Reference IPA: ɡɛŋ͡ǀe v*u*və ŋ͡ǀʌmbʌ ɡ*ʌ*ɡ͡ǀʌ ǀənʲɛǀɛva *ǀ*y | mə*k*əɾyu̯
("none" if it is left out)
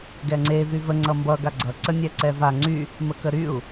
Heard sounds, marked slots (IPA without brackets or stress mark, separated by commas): y, a, ŋ͡ǀ, k